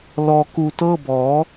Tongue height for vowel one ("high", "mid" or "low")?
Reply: mid